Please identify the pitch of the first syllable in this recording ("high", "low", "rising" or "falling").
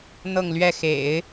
falling